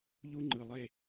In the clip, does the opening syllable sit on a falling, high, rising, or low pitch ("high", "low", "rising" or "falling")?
high